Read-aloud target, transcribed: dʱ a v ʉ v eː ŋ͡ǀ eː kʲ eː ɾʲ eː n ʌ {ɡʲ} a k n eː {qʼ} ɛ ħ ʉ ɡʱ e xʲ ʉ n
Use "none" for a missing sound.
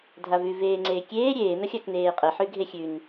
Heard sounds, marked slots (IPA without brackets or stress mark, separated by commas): xʲ, qʼ